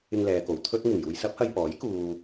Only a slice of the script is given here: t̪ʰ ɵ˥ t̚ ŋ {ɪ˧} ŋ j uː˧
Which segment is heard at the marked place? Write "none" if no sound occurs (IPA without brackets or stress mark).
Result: ɪ˨˩